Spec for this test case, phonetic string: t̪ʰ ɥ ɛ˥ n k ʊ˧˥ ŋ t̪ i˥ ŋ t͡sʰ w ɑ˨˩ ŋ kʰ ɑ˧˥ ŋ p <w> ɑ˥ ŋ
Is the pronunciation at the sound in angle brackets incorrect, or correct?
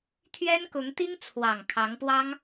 correct